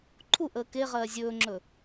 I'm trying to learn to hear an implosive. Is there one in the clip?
no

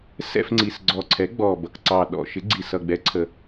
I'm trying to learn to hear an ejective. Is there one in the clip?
no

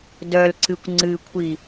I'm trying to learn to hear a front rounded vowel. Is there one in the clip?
yes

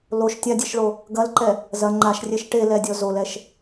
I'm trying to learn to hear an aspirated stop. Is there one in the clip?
no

